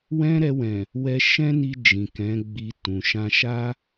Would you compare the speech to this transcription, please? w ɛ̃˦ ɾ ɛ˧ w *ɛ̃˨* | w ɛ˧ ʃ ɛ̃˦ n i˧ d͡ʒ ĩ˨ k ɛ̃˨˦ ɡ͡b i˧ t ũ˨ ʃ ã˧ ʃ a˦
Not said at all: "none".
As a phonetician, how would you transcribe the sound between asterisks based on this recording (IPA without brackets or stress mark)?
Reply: ɛ̃˨